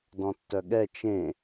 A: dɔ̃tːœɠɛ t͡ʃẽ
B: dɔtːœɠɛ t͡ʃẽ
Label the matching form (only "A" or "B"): A